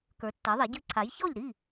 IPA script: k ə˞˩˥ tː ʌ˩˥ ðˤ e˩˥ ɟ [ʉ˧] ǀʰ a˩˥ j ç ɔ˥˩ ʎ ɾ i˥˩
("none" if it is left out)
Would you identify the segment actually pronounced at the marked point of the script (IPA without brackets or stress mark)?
ʉ˧